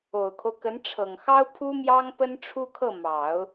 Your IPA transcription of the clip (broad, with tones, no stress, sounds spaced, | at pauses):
o˨˩ ʊ̯ kʰ o˦ ʊ̯ k ə˧˥ n ʈ͡ʂʰ ɤ˨˩ ŋ x ɑ˥ ʊ̯ pʰ u˥ m j ɑ˥ ŋ p ə˥ n ʈ͡ʂʰ u˥ kʰ ɤ˥˩ m ɑ˨˩˦ ʊ̯